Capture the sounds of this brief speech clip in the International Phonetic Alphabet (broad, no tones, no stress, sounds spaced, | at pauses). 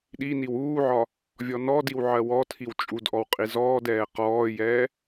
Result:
ɗ i n i w uː ʕ ɒ | vʲ ɔ n ɔ d i w ʕ ɜ w ɔ tʰ i w t͡ʃʼ u d ʔ ɔ w qʼ i z ɔː d ɛː q ɔː j ɛː